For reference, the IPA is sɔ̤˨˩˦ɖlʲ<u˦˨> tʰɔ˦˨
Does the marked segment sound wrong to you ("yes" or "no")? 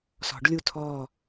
no